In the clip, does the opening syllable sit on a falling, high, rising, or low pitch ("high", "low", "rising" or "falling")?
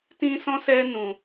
high